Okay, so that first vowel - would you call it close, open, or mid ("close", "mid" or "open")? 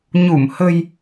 close